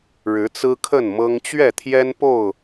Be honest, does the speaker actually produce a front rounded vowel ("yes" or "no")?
no